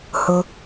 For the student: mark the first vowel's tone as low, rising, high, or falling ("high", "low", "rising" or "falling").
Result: low